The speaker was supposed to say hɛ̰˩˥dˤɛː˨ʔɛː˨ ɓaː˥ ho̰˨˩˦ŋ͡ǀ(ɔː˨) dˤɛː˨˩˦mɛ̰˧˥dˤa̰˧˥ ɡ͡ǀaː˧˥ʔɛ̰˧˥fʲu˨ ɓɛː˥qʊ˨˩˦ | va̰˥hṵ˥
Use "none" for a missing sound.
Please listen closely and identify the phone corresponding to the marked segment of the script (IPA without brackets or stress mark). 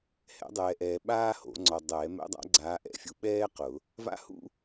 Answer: ɔ˨